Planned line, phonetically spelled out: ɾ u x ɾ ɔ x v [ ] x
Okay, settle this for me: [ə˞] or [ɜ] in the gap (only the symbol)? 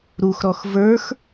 ə˞